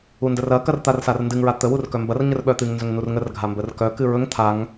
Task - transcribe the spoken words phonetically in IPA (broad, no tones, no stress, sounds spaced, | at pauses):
u n d ə r ɐ k ɐ r t̪ a r s a r n d ɨ ŋ ɹ a t̪ ə w u r k œ m b ɐ r ɲ ə r ɓ œ t̪ ɨ ŋ n z ɵ ŋ n u r ŋ ə r ɡʱ a m b ə r k œ k ɨ ɹ ɵ ŋ t̪ʰ a ŋ